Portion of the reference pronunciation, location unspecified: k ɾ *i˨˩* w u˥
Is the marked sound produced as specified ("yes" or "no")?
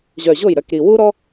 yes